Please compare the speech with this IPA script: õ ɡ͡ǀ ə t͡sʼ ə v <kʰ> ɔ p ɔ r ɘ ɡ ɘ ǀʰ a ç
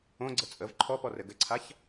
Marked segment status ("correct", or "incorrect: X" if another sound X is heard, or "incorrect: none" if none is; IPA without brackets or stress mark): incorrect: ǃʰ